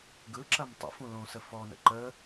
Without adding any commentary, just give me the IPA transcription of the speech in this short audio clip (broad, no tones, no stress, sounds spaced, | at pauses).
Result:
ɡ ɯ ǁ ɐ m tˤ ə̰ f ũ l õ s ə f ɔ n ə̰ ǃ ə